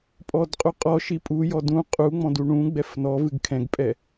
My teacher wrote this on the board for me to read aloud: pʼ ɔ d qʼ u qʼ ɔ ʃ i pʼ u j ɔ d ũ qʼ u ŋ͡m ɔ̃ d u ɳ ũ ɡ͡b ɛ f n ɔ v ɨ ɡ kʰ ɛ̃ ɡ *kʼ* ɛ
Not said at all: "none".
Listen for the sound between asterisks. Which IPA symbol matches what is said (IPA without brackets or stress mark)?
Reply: pʼ